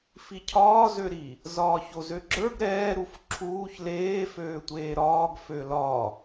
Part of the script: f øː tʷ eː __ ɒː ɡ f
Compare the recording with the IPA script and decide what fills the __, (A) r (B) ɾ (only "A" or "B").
B